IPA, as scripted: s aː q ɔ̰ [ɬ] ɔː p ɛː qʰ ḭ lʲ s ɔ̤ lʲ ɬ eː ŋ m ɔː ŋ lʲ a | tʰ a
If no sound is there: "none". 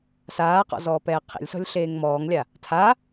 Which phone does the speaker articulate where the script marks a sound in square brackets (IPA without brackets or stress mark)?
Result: z